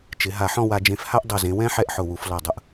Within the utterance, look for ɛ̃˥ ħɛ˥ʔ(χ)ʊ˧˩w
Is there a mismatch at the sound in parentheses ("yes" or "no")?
yes